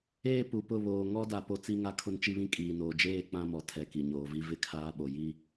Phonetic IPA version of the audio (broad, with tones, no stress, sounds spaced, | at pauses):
eː˦ p u˨ p ʊ˦˨ β oː˨ ŋ ɔ˦ d a˨ p o˦ t͡s i˦ ŋ a˦ kʰ ʊ˦ n t͡ʃ i˦ β ĩ˦ kʼ iː˨ n oː˨ d͡ʒ eː˦˨ k͡p ã˦ m ɔ˨ tʰ ɛ˨ k i˨ ɲ oː˨ v i˦ v ɪ˦ kʰ aː˦ ɓ o˨ j i˦